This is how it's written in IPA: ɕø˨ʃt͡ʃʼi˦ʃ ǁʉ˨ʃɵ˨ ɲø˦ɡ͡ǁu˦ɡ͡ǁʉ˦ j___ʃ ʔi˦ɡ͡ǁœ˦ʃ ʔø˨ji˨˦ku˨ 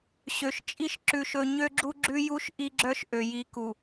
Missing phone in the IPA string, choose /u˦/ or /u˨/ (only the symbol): u˦